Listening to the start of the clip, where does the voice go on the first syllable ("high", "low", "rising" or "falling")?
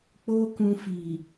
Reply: high